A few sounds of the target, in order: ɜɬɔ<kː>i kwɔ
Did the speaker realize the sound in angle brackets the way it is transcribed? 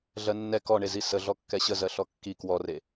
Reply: yes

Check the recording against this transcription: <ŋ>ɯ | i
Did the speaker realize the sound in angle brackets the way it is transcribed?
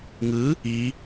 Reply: yes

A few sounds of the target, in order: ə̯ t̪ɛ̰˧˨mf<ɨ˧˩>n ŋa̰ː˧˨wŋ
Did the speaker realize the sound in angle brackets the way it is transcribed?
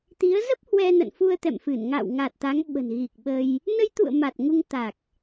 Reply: yes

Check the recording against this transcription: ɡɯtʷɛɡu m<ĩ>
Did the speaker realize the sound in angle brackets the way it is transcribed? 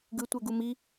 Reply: no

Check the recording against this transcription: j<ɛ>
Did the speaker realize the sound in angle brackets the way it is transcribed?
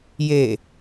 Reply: no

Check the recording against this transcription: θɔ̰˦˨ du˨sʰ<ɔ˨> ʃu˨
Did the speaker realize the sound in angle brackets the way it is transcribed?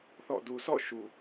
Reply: no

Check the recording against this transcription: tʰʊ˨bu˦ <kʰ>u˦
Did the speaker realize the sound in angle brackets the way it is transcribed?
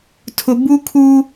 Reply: yes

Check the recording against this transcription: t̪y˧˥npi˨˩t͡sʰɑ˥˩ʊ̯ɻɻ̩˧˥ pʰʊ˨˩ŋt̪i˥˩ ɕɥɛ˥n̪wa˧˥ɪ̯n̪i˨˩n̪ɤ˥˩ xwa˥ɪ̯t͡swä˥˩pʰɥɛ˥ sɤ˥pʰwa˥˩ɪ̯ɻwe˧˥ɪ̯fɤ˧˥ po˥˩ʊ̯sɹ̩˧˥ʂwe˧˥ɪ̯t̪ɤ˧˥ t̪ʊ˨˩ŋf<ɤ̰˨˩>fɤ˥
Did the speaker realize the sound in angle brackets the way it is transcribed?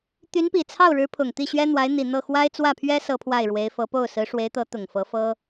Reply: no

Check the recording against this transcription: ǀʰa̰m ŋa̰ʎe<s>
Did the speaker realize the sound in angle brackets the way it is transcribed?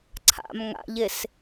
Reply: yes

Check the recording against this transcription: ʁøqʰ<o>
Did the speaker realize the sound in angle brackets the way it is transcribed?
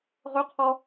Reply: no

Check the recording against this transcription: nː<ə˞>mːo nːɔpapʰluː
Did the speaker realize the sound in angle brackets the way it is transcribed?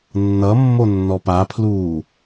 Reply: no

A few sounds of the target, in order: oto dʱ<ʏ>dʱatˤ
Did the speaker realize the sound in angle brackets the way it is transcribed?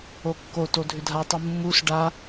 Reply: yes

